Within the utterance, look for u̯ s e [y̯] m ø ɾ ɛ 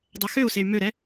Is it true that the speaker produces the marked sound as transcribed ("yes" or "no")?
yes